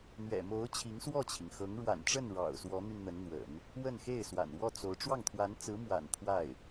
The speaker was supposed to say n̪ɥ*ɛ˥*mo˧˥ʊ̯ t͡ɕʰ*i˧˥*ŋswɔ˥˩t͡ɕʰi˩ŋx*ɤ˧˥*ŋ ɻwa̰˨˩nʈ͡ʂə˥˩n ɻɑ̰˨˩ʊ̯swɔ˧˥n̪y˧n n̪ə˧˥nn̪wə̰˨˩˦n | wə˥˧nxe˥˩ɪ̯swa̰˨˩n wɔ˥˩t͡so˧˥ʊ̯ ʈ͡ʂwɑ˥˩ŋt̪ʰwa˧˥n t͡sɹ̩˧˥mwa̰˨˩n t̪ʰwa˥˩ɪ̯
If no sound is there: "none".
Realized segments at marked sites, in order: ɛ̰˨˩, i˧˥, ɤ˧˥

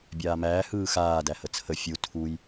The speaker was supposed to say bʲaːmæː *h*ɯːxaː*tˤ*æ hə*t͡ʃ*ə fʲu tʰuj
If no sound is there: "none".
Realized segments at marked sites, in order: h, d, t͡sʰ

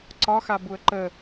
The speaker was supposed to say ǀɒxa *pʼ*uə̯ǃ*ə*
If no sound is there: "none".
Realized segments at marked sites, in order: b, ə

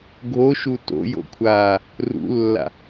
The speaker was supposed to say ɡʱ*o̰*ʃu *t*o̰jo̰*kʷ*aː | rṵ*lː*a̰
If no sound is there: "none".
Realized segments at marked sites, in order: o, t, kʷʰ, lː

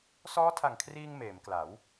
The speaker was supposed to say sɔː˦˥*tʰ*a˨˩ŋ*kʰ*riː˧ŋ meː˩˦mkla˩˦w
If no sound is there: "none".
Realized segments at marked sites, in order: tʰ, kʰ

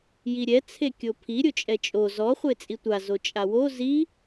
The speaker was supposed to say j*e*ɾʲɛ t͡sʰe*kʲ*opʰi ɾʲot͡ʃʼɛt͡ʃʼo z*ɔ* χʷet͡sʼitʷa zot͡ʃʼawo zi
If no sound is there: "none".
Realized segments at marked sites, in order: i, kʲ, ɔ

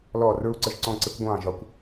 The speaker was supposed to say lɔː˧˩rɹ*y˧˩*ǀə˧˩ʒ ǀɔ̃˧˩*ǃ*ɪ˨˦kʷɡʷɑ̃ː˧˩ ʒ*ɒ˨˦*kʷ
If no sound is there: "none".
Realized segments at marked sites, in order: u˧˩, ǀ, ɒ˨˦

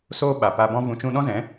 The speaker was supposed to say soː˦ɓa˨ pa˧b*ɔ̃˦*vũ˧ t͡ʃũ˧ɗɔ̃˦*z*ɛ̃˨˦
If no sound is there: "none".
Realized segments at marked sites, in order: ɔ̃˦, z

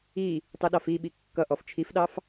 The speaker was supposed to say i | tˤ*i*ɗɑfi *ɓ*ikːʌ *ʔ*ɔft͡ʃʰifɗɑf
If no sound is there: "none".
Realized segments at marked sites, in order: i, ɓ, ʔ

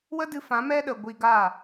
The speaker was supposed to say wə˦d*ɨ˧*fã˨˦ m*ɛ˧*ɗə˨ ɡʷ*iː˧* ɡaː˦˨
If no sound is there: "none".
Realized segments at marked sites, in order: ɨ˧, ɛ˧, i˧

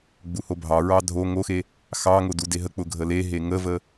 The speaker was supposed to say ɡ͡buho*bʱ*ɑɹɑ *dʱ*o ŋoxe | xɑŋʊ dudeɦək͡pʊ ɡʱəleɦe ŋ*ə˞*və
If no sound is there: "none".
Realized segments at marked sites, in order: bʱ, dʱ, ə

